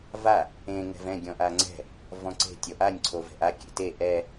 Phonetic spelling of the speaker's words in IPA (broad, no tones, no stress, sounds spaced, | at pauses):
v a | ẽ ŋ ɛ̤ v ɛ̃ ɡʲ ɔ̃ ʔ a ŋ͡ǀ ɛ̤ | v ɔ̃ ǀ e̤ tʲ ɔ ʔ a nʲ ǀʰ o v ɛ̤ ʔ a kʲ ḛ t e ʔ ɛ